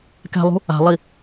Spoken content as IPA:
kɛ̤lˠṳ | a̤lˠi

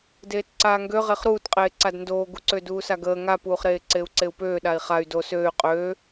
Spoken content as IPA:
deːtǀaːŋɡø ʁeχɾuːtqʼeː ǀadndoːɡuǀø duːsaɡəː ŋapuːχɾeː ǀeu̯ǀeu̯pøː ɗai̯χay̯ do søːy̯ qʼøː

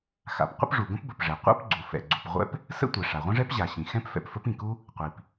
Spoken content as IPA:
xa̰˩p qʷə̰˥pʐu˩ ɡə̃˥pbə˩pʐɛ˩ qʷa̰˥pɡ͡ǀu˩ fɛ̰˩ɡ͡ǀu˩pʁʷɛ̰˥p | sə̰˥tʷɛ˩ ʂa˩ʁʷə̃˥ʐɛ˥p ʑa˩ɕĩ˩ xɛ̃˥pfɛ̰˩pfə˥p ĩ˩ku˥ | qʷi˩p

